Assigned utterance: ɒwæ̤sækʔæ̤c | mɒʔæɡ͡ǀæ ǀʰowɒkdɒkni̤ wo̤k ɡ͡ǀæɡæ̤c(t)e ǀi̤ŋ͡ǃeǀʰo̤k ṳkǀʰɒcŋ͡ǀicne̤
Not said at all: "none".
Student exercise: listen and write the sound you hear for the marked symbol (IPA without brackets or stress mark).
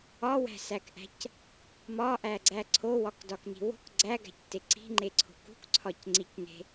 t